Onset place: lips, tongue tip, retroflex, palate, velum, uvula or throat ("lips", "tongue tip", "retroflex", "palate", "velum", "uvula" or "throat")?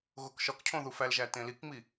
velum